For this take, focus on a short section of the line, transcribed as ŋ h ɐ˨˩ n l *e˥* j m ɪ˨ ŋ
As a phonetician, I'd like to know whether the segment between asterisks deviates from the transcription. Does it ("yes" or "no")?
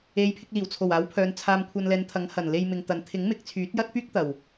yes